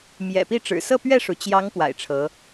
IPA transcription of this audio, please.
m j ɛ̰˨˩ p i˥˩ ʈ͡ʂ ɻ̩˨˩ s ɤ˥˧ p ɥ ɛ˥˩ ʂ u˩ t͡ɕ j ɑ˧˥ ŋ p w a̰˨˩ ɪ̯ ʈ͡ʂʰ ɤ˧˥

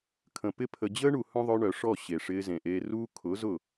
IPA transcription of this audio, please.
kʰ ə̃˨ p ɪ˦ pʰ ə˧ d͡ʑ əː˦ ɳ u˨ h œ̃˦ ðˤ œ˧ ɳ œ˨ ʂ ɔ˦˨ ɕ e˨ ʂ ɪː˧ z ẽ˨ ʔ eː˧ r uː˦ kʰ ʊ˨˦ z ʊ˦˨

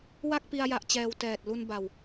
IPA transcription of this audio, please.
w a˥˩ k̚ p i˧ a̯ j a˦˥ ʔ t͡ɕ ɛː˧ w t ɛː˨˩ t̚ l u˧ n b a˨˩ w

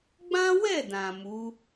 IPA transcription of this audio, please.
ɡ͡b ã˦ w ɛ˦˨ d ã˨ m u˨˦

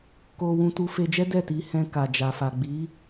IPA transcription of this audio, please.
k o˧ w ũ˧ t u˧ f e˧ d͡ʒ ɛ˦ d ɛ˦˨ t i˨˦ h ɛ̃˧ k a˨ d͡ʒ a˨ f a˨ ɡ͡b i˨˦

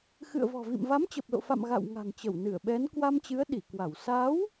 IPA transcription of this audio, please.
x ɨ̰˧˨ ə̯ v ɔ̤˨˩ v ḭ˧˨ m v a˨˦ m t͡ɕ ə˨˩ p̚ l o̰˧˨ f a̰˧˨ m ɣ a̰˧˨ w ŋ a̤˨˩ ŋ t͡ɕ ə˧˩ w n ɨ˧˩ ə̯ ɓ ɛ˨˦ n k w a˧ m t͡ɕ ɨ˨˦ ə̯ ɗ i˧˩ k w a˧˩ w s a˨˦ w

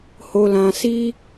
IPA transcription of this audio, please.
h o˧ l ã˧ s i˦

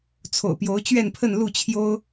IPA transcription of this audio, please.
t͡sʰ o̰˨˩ ʊ̯ p j o˧˥ ʊ̯ t͡ɕ ɥ ɛ˥˧ n pʰ ə˥˧ n l u˥˩ t͡ɕʰ j o˥ ʊ̯

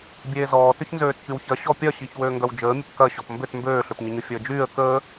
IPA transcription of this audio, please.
bʲ eː z ɔː t ʏ ç n z øː t ç y w ç ɐ ɕ ɔ pʲ ɐ ɕ i ç w øː ŋ ɡ œ w d͡ʒ əː mʲ ə p k ɐ ɕ ɔ p m b ʏ t m b øː ɬ ø p ɲ ɪ ɲ ʏ fʲ əː d͡ʒ yː ə̯ k əː

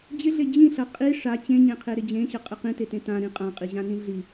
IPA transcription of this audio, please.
d͡ʑ ɪ ɮ e d͡ʑ ĩ ɬ ɐ qʼ i ʂ a t͡ɕ ẽ ɲ ẽ qʰ e ɾ ɪ d͡ʑ ẽ ɕ ɐ qʼ ɪ q ĩ t e t ẽ t ã ɾ ĩ qʼ ã qʼ i ʑ ã n ĩ ɮ i

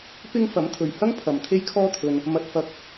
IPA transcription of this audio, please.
p ɪ˥ ŋ f ɐ˨˥ m t̪ʰ ɵ˨ ɥ h ɐ˥ ŋ pʰ ɐ˨ m t̪ʰ e˥ j kʰ ɔː˥ t̪ʰ ɵ˧ n | m ɐ˧ t̚ f ɐ˧ k̚

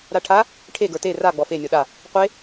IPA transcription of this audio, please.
ɾ a ʈʰ a | ʈʰ e ɡ ə˞ t e r a ɡ͡b ɔ f e nʲ ɔ ɗ a | qʷ e

